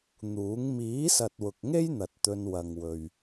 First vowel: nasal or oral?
oral